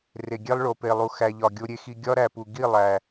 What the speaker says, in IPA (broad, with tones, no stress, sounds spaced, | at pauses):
r e˨ ɡʲ e˦ lˠ ɭ o˨ p e˨ lˠ u˨ x æ˨ ʎ ɒ˨ ɡʲ o˧ ɾʲ e˧ x i˧ ɡʲ ɒ˦ ɾ æ˨ p u˨ ɡ i˦˨ lˠ æ˨